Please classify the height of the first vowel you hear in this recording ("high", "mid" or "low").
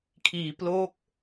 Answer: high